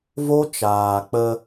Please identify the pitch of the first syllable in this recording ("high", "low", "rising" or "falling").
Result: high